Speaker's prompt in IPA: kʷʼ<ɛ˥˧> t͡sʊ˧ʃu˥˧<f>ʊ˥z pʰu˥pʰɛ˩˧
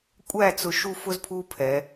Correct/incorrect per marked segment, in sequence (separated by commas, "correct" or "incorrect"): incorrect, correct